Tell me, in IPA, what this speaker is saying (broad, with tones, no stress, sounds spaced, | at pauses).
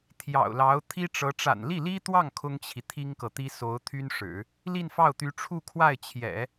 t̪ʰ j ɑ̰˨˩ ʊ̯ l ɑ˧˥ ʊ̯ t̪ʰ i˥ ʈ͡ʂ ɤ˧˥ ʈ͡ʂ a̰˨˩ n l i˥˩ l i˥ t̪ w ɑ˥˩ ŋ kʰ ʊ˥ ŋ t͡ɕʰ i˨ t̪ʰ i˥ ŋ k ɤ˨ t̪ i˥ s o˧˥ ʊ̯ t̪ʰ y˥ n ʂ ɻ̩˨˩˦ | l i˥˧ n f ɑ˥˩ ʊ̯ t̪ y˧˥ ʈ͡ʂʰ u˥˧ kʰ w a˥˩ ɪ̯ t͡ɕʰ j ɛ̰˨˩˦